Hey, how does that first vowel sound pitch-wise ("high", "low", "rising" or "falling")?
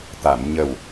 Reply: low